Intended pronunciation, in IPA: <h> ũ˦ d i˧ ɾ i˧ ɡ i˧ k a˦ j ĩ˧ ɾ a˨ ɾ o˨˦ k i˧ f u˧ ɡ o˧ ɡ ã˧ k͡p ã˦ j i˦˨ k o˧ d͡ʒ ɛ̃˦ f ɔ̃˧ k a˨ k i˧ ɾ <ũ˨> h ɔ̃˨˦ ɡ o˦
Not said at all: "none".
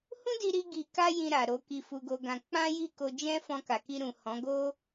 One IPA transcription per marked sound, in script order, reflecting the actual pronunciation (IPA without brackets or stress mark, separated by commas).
h, ũ˨